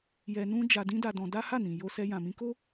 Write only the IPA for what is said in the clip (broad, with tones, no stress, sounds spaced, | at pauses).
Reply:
j ɛ˧ n ũ˦ d͡ʒ a˧ d ĩ˦ d a˧ d ɔ̃˧ d a˦ h a˦˨ n ĩ˨ j o˧ s ɛ˧ j ã˨ m ĩ˧ k o˦